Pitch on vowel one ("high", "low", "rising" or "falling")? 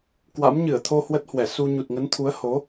rising